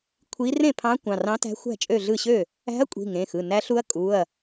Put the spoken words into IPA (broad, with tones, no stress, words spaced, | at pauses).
kʷʰi˧˥ rẽ˥˩pʰɑ̃˧˥ kʷɑ̃˩˧˩rɑ̃˧˥tæ̤˧˥ xʷæ̤˥˩t͡ʃʼø˥˩ ɮɯ˥˩ɕø˥˩ | æ̤˧˥ɐ̯kʷʼi̤˩˧˩ ŋẽ˩˧˩xɯ˩˧˩ næ˧˥ɬu˧˥ɐ̯ kʼu˩˧˩ɐ̯